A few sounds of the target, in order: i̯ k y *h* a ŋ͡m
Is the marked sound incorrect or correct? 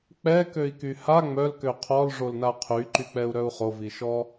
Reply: correct